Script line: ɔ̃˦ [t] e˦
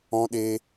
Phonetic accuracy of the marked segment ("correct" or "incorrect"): incorrect